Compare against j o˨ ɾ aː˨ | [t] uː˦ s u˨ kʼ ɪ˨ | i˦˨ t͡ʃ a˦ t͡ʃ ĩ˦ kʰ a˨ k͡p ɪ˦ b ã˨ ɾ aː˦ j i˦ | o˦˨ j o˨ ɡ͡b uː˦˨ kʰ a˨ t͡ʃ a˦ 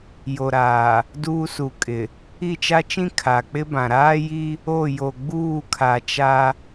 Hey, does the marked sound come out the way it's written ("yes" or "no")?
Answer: no